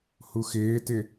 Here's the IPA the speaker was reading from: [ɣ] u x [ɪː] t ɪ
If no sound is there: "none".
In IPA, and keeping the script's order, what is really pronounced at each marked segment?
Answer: h, ɪː

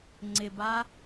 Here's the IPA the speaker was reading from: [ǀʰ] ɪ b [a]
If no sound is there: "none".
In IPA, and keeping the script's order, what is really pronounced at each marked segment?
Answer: ŋ͡ǀ, a

